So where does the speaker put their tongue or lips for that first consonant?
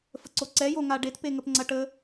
lips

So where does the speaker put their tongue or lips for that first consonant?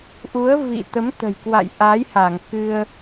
throat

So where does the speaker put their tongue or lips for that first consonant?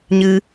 palate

